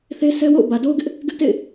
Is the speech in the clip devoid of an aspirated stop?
yes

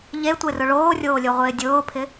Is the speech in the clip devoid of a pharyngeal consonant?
yes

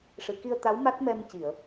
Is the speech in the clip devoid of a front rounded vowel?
yes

